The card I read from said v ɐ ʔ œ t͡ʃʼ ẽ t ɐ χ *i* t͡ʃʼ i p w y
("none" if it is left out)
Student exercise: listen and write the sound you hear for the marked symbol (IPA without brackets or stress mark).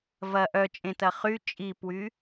y